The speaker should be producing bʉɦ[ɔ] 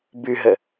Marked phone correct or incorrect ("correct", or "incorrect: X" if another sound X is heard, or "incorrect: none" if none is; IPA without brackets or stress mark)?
incorrect: ə